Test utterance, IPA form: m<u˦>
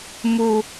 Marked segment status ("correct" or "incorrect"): correct